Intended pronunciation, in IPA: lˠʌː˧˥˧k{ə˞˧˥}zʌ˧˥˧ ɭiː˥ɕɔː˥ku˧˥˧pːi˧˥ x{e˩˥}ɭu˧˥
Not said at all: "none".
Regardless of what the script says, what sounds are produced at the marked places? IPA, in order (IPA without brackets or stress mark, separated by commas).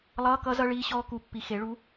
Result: ʌ˧˥, e˩˥